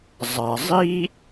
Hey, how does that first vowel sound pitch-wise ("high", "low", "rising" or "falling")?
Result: low